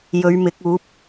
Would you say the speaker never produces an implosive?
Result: yes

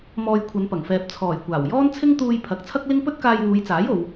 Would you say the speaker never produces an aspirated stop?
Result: no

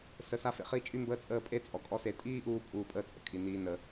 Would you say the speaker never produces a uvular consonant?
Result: no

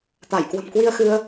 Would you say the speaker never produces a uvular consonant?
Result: yes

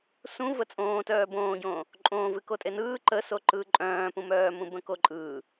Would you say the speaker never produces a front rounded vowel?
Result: no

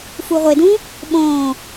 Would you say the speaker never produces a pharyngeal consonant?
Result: yes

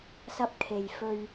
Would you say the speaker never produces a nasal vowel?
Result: yes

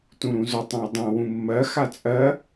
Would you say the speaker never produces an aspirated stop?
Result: yes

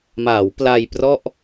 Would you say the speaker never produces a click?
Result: yes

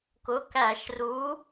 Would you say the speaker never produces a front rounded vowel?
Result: yes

